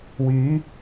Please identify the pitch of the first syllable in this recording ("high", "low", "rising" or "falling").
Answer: rising